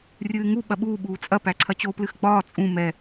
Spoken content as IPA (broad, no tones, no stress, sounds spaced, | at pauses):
rʲ ɨː ŋ u ɓ ɐ ɓ uː ɓ uː t͡sʼ ɐ p æ ǀʰ ɐ t͡ɕ o p l ɨ x ɡ͡b ɒː t͡sʼ ũ m ɛ